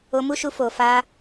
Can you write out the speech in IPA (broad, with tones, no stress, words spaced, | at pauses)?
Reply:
o˧mu˦ʃu˧ fo˨fa˧